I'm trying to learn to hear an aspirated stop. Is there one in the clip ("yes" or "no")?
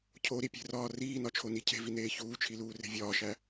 yes